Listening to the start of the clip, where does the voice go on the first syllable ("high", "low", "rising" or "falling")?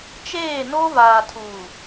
falling